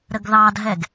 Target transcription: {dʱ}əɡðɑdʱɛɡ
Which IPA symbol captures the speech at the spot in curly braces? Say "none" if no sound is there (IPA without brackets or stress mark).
ɾ